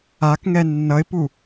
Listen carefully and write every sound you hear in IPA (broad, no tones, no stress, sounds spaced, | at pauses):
a k ŋ ɛ nː ʌ ɪ̯ p u